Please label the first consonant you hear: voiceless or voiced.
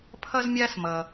voiceless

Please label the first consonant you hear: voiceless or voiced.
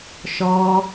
voiceless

